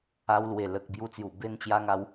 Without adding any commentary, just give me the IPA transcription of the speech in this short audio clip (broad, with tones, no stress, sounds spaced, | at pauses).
a˧ w l w e˨˩ l ə˨ k̚ b j u˧ t͡s j u˨˩ b e˧ n t͡ɕ j a˧ ŋ a˧ w